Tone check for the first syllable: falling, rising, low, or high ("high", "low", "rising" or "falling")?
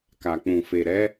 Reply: low